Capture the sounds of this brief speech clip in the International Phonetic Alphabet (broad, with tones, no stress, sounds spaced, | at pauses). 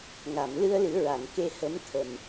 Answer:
ŋ a˨˩˨ m l ɨ˧ ə̯ l ɨ˨˩˦ ɹ a˨˩˨ n k e˧ h ə˧˥ m t̪ʰ ə˨˩ m